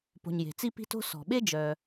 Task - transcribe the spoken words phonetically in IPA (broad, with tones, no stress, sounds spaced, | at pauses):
p o̤˨ ɲ j e̤˩ t͡s i˦ p i̤˦ t o̤˦ s ɔ̤˨ ɓ e˥ d͡ʒ œ˨